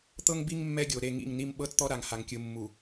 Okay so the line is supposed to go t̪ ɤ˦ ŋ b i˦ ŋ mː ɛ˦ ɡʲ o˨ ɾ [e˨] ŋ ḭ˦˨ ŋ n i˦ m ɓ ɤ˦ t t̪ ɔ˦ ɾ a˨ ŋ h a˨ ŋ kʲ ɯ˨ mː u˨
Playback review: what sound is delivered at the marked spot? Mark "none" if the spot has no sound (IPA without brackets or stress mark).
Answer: e˦˨